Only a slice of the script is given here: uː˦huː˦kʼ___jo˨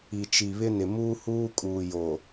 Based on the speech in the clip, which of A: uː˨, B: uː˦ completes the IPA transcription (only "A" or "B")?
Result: A